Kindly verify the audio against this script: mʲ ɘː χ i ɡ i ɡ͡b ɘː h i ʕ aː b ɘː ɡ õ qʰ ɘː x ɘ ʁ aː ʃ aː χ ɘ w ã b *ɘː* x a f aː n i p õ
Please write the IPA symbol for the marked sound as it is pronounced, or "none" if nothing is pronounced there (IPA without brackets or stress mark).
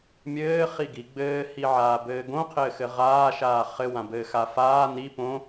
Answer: ɘː